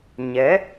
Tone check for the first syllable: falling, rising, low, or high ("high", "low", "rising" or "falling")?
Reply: rising